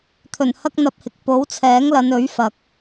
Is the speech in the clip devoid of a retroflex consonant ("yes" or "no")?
yes